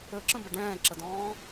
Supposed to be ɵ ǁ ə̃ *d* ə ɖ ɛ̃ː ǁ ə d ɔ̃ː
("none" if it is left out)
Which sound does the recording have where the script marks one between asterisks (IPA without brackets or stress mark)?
b